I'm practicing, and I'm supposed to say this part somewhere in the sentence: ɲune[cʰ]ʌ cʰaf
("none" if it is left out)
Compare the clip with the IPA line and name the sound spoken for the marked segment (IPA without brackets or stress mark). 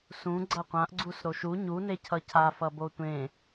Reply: cʰ